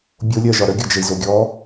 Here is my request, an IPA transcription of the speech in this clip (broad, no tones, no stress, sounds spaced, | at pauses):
bʲ o lʲ ɜ ʒ ɒ ɾ ə ɡʲ ɤ d͡ʒ ə i̯ z o ɡʲ ɔ